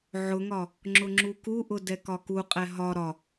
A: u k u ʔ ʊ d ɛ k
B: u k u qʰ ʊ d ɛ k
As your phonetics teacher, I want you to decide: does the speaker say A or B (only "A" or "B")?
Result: A